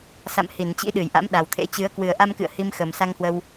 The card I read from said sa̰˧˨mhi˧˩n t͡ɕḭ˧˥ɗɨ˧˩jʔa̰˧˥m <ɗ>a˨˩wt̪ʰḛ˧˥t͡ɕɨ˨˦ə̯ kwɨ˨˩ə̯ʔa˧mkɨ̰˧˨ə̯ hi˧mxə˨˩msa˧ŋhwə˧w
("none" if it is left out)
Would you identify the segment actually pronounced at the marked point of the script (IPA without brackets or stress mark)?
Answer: ɗ